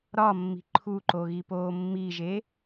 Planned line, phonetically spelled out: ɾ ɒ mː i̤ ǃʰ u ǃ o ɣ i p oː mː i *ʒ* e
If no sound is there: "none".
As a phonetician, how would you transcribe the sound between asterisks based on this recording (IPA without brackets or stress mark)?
ʒ